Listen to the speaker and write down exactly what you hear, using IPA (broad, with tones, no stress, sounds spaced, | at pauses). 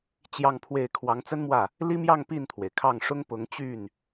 t͡ɕ j ɑ˥˧ ŋ pʰ w e˥˩ ɪ̯ kʰ w ɑ˧˥ ŋ t͡s ə˥ n m w ä˥˩ | l i˥ m j ɑ˥˧ ŋ p i˥˩ n t̪ʰ w e˩ ɪ̯ kʰ ɑ˥˩ ŋ ʂ ʊ˥ ŋ p ʊ˧˥ ŋ t͡ɕ y˥˩ n